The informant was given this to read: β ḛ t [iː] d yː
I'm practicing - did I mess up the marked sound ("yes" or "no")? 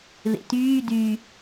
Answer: yes